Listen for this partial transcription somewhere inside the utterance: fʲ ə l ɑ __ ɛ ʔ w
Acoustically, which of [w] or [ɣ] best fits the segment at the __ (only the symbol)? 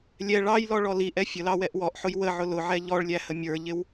w